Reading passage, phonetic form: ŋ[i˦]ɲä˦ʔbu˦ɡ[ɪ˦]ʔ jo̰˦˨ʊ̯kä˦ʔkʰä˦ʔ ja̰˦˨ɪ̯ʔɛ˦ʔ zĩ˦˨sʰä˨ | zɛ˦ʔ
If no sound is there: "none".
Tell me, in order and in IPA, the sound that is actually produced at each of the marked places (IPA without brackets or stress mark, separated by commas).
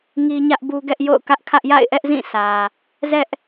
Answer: i˦, ɛ˦